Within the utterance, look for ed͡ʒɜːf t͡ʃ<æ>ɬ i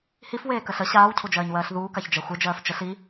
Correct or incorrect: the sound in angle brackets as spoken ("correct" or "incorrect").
incorrect